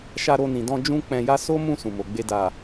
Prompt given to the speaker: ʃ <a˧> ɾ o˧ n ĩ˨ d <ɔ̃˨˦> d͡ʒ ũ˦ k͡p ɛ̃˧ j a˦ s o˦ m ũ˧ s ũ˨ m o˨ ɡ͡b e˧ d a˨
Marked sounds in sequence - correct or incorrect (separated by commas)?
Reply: correct, incorrect